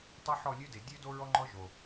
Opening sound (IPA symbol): tˤ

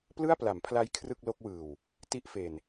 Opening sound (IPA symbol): p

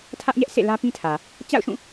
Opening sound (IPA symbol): tʰ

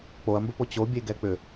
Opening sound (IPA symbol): k͡p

